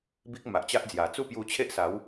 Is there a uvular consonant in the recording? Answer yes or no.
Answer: no